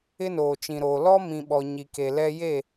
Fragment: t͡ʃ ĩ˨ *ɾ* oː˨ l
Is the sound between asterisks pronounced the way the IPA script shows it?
yes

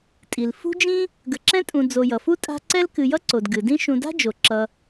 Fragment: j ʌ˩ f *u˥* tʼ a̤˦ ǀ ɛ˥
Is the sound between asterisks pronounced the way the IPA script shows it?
yes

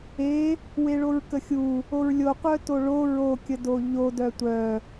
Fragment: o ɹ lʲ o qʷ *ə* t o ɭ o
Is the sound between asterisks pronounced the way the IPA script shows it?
no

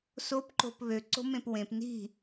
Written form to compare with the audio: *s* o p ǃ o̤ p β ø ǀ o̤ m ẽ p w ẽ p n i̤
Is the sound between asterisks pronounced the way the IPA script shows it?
yes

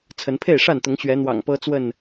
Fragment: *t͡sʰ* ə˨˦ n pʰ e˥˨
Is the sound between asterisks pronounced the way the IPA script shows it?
yes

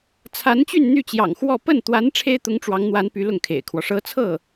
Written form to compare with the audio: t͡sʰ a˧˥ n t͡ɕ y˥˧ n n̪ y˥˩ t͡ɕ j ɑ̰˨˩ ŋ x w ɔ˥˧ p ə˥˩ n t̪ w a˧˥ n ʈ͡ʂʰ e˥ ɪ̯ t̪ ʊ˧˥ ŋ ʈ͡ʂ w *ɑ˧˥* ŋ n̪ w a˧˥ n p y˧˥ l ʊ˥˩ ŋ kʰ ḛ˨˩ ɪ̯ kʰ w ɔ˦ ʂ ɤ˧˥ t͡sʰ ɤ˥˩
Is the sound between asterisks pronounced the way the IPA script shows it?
yes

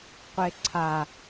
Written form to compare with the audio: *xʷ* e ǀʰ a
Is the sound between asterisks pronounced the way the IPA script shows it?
no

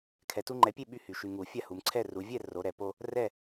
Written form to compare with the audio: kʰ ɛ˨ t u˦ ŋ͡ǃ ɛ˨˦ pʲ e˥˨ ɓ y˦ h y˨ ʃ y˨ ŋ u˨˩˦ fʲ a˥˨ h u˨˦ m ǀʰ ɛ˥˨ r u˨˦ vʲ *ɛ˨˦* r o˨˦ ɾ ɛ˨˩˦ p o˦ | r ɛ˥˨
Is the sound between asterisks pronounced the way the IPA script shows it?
no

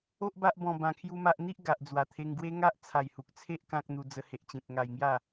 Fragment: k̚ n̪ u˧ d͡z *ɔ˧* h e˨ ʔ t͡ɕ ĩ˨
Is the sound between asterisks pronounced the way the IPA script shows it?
no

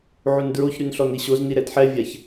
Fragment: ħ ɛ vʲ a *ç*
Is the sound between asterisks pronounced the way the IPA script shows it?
yes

